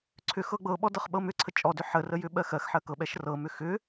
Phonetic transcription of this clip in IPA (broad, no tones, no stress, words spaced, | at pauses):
ǀʰʏxɤ ɡ͡bɤɓɔ dɤχɓɤmʏǀʰə t͡ʃʼɔdʏ ħərə jʏɓɜxɜxħɜ kɤɓɛʃ rɤmʏ xʏ